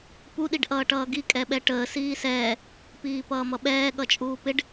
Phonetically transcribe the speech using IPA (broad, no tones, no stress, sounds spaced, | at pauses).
p u ɗ i ɖ ʔ ʌː ʈ ʌː ɡ i kʼ ɛ ɓ ɛ ʈ əː s iː s ɛː | p iː p ʌː m ʌ ɓ ɛː ɠ ʌ t͡ʃʼ uː p ɪ ɖ